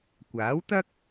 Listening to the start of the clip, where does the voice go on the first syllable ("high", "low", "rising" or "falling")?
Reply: rising